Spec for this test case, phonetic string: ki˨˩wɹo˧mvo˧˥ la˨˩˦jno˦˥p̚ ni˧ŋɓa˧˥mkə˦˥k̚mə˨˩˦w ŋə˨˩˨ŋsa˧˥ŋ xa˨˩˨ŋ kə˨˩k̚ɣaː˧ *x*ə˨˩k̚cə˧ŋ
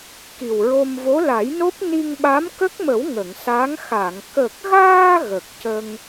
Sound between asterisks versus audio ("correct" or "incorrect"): incorrect